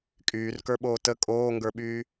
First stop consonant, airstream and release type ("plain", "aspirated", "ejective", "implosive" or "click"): ejective